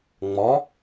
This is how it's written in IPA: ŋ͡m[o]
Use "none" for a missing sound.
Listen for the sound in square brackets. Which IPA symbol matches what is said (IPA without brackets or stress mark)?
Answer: ɔ